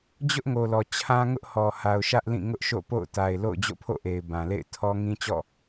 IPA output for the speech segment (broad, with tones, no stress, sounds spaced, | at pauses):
d͡ʑ ʊ˦ ʔ ŋ o˨ l ɔ˨ t͡ɕʰ ã˦ ŋ ʊ˦ ʔ h ɔ˨ h a˨ ʊ̯ ʃ ä˦ ʔ l ĩ˦˨ ŋ ʊ˦ ʔ ʃ o̰˦˨ p o̰˦˨ ʊ̯ t a˨ ɪ̯ l o̰˦˨ ʊ̯ d͡ʑ o̰˦˨ pʰ o̰˦˨ ʔ e˨ ɪ̯ b ã˨ l ḛ˦˨ ɪ̯ tʰ ɔ˦ ŋ ĩ˦ t͡ɕ ɔ̰˦˨